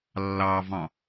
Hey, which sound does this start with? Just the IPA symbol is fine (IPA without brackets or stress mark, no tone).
lː